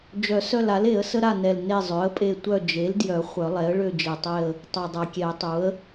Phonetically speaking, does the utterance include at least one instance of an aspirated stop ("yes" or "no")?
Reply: no